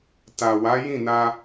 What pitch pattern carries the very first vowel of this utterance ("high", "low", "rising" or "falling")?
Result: low